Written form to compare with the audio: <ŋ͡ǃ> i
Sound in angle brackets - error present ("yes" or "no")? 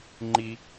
no